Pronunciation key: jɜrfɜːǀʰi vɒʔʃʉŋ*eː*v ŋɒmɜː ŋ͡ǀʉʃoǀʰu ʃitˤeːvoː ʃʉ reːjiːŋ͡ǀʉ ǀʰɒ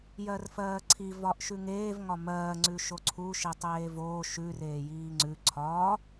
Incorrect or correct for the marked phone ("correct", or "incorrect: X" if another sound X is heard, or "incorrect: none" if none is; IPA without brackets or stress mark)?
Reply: correct